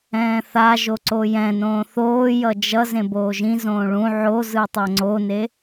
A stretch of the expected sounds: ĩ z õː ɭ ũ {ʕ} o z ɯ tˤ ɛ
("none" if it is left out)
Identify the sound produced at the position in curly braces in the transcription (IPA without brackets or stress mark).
ʕ